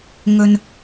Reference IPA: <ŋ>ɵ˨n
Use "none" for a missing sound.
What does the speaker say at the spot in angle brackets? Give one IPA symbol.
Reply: ŋ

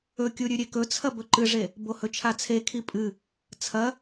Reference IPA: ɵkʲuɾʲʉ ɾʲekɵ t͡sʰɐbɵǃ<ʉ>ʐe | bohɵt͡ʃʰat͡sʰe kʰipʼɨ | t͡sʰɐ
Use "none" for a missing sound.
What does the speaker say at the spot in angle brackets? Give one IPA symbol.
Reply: ɨ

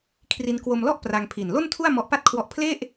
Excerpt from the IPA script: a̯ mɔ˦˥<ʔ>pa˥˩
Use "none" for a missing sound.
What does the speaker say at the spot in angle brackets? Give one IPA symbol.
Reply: ʔ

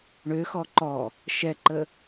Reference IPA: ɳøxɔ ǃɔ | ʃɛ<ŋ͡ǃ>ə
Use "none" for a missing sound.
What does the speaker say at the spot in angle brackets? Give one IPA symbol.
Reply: ǃ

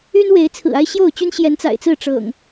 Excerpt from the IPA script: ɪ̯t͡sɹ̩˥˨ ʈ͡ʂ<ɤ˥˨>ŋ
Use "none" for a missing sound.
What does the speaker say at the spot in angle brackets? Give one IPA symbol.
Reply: ɤ̰˨˩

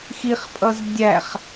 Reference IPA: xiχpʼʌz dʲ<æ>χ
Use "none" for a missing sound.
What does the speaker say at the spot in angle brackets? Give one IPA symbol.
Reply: æ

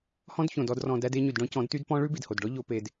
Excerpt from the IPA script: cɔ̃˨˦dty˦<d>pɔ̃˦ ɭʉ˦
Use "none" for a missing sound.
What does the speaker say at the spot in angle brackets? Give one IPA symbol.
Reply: d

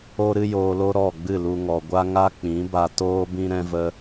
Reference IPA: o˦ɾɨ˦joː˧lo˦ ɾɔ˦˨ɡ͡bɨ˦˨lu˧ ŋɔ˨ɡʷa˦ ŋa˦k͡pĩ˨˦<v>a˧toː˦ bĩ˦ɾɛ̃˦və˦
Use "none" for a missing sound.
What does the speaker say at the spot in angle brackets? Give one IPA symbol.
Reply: b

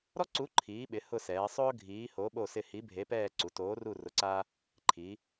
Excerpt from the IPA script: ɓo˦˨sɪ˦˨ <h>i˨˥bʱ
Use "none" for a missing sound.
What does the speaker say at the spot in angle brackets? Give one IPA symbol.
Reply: h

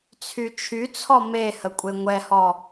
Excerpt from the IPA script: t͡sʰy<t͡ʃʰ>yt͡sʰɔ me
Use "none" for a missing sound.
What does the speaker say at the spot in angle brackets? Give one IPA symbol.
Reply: t͡ʃʰ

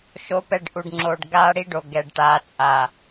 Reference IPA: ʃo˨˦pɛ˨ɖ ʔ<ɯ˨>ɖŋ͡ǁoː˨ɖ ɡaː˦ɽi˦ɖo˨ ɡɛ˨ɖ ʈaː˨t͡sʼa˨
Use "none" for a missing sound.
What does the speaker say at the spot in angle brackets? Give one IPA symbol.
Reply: u˨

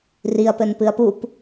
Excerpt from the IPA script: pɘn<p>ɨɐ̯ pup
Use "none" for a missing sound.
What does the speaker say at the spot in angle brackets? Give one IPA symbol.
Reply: p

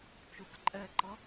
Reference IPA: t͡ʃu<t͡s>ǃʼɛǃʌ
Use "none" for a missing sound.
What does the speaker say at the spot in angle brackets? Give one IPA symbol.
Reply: t͡s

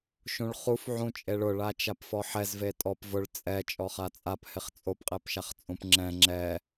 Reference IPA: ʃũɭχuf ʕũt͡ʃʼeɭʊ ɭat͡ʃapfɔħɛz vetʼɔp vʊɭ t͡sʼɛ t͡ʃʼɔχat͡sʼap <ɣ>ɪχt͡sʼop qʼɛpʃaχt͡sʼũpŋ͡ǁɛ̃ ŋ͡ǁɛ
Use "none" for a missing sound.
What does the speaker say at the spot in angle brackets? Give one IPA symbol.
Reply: h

